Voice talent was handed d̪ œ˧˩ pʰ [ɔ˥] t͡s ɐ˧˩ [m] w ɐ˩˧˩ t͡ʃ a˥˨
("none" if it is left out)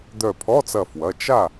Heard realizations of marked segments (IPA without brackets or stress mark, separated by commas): ɔ˧˥˧, f